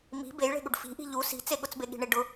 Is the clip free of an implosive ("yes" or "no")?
no